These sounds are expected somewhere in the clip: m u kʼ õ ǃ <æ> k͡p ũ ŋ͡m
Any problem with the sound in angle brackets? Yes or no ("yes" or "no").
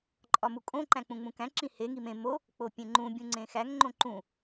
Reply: yes